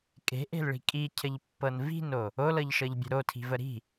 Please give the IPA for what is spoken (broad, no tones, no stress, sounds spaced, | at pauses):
kʼ e̤ ʔ e̤ l ɭ i̤ kʼ i cʰ ə ʎ pː ɤ n v i̤ n o | o l ɤ ʎ ʃ ɤ ʎ bʲ ə̤ ɾ o tʰ i̤ v ə ɾ i̤